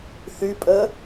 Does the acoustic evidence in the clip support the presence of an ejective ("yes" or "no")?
yes